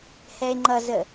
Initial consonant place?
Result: glottal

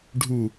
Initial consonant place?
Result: retroflex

